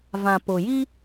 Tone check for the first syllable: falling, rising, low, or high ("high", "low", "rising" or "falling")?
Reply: low